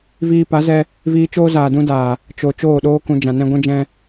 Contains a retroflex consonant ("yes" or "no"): no